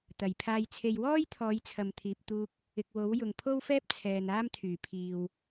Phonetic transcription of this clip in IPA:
t̪ ɐ˨˩ j pʰ aː˧ j t͡sʰ e˧ j w ɔː˥ j t̪ʰ ɔː˨˧ j t͡sʰ ɐ˨ m t̪ʰ iː˨ p̚ t̪ uː˧ k̚ | ɪ˨ k̚ w o˨˥ w j ʊ˨ ŋ pʰ o˥ w f ɛː˥ p̚ t͡sʰ ɛː˨ n aː˥ m t̪ʰ yː˨˩ pʰ iː˨ w

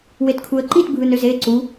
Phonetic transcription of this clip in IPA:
w e t kʰ u ə̯ ǃ i t bʱ ɯ n ø z e ǀ u

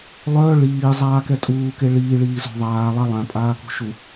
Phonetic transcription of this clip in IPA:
lˠ œ ɭ iː zˤ aː k ɛ tʼ uː k e ɭ iː ɭ iː z ɔ̤ ðˤ aː lˠ a lˠ ã pʼ aː k ṳ ʃ u

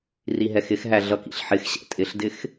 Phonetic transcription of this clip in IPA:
r i ɦ ɛ x ɪ x ɦ æ ɮ ʌ k ḭ ɬ ħ ɪ x ɕ ɛ̰ tʼ ɪ ɬ d ɪ x

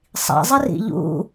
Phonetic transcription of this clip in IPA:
sˤ ḭ zˤ ɪ r ḭ ʎ ṵ

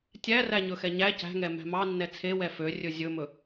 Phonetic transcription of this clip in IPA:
tʲ æ r æ ɲ ɵ x ɛ ɲ æ c æ̤ ŋ ɛ m æ̤ m ɑ nː ɛ t͡sʰ e w ɛ f ø rʲ ɵ zʲ ɵ m ɵ

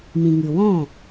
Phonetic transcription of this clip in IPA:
m ĩ˨ ŋ ɨ˨ w ɔ̃˦˨

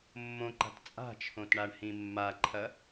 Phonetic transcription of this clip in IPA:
mː õ ǃ a̤ t t͡sʼ a̤ t͡ʃʰ õ t ɳ a ɳ h ĩ mː a ǃʰ ɐ

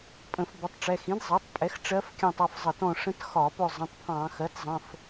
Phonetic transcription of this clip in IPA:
pʼ ə̃˧˩˧ f b ə˩˥ tˤ ʈ͡ʂ ɛ˩˧˩ x ĩ˩˥ d zˤ ɜ˩˥ tˤ pʼ ɛ˩˥ x ʈ͡ʂ ɜ˧˥ f kʲ ɑ̃˦˨ tˤ ʌ˩˧˩ f zˤ ə˧˩˧ t ɔ̃˦˨ ʂ ə̃˧˥ t x ɒ˧˩˧ p ʊ˦˨ zˤ ə̃˩˧˩ tˤ pʰ ɑ̃˧˩˧ x ɜ˩˥ t zˤ ə̃˩˧˩ f

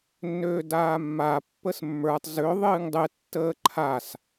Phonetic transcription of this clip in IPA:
nː øː d aː mː a pː ə s mː ə˞ tˤ z ø ðˤ ɨː ŋ dˤ ɨ tː əː ǃʰ a s

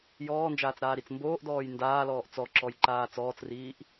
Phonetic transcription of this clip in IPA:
j ɔː n d͡ʒ aː t͡s ɾ aː ɾ i t͡s m b oː ʔ d ɔː j n d aː l ɔː ʔ t͡s ɔ ǁ ɔ j ǃ aː t͡s ɔː t͡s r iː ʔ

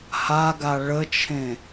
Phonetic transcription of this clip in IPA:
h a ɡ a ɭ ə t͡ʃʰ ẽ

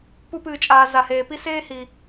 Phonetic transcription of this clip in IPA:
p u˧ p ɨː˩ t͡ʃʼ aː˩ z a˩ h eː˩ p i˥ s eː˥ h iː˩

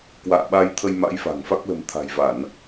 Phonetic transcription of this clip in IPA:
k w a̰ː˧˨ ɓ a˧ j t̪ʰ ə˧ j m a̰˧˥ j f a̤˨˩ ŋ f a˦˥ k̚ l ə̤˨˩ m t̪ʰ a̤˨˩ j v a˧˩˨ n

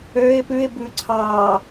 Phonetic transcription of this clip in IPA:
ø ɪ̯ p ʉ ɪ̯ b ʉ ǀʰ ɑ

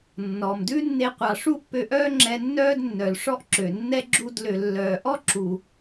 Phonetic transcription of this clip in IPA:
nː ɔ˨ m d ʉ˦ nː e˧ qʷ ɑ˨ ʂ u˦ ʔ p ø˧ ʔ œː˦ ŋ͡ǁ ɛ˧ nː œː˦ d nː œ˨ l ʂ ɔ˦ ʔ ǁ ø˨ nː ɛ˦ ɡ͡ǁ u˦˨ d l ø˨ lː œː˨ ʔ ɔ˦ ǁ u˨

